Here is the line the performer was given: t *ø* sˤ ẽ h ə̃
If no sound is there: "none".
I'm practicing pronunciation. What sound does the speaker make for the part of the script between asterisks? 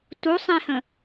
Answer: u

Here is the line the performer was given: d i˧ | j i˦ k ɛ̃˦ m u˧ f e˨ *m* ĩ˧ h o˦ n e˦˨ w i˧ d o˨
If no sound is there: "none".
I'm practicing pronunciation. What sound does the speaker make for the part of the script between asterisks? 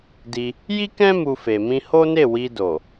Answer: m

